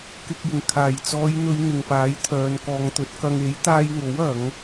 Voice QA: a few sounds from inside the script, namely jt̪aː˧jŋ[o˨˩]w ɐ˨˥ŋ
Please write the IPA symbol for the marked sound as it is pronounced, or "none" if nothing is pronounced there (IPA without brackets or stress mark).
o˨˥